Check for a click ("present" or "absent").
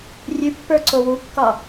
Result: present